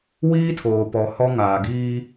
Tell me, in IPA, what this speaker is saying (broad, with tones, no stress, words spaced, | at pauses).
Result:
wiː˦tʰoː˨pɔ˨ hɔ˦ ŋaː˨ɡiː˦